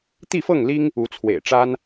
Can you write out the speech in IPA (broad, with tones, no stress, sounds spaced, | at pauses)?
t̪ i˥˨ f ɤ˥˨ ŋ l i˦ ŋ | u˨˦ t͡sʰ w ḛ˨˩ ɪ̯ ʈ͡ʂ a˦ n